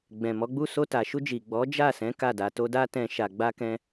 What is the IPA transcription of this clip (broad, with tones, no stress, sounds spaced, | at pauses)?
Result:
ɡ͡b ɛ̃˨ m ɔ˨˦ ɡ͡b u˦˨ s o˧ t a˨ ʃ u˧ d͡ʒ i˨ ɡ͡b ɔ˨˦ d͡ʒ a˦˨ s ɛ̃˨˦ k a˦˨ d a˧ t o˦ d a˦ t ɛ̃˧ ʃ a˧ ɡ͡b a˦ k ɛ̃˦